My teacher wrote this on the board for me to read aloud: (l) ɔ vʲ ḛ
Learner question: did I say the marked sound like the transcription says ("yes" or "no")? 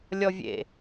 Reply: no